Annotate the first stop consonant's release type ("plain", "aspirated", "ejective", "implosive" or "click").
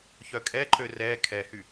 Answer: ejective